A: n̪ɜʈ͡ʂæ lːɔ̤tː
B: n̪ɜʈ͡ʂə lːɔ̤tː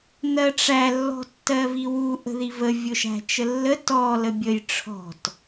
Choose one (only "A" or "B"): A